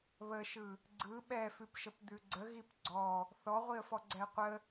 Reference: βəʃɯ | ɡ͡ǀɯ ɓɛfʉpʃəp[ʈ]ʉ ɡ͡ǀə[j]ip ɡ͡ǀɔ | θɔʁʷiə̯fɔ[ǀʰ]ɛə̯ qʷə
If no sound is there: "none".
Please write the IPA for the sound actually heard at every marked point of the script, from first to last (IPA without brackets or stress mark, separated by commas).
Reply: d̪, ɣ, ɡ͡ǀ